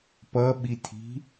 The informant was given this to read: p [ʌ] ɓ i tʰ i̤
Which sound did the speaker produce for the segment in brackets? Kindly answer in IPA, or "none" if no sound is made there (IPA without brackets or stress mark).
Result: ʌ